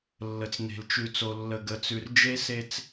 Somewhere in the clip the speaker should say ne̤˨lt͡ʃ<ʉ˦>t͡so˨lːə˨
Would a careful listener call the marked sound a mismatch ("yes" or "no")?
yes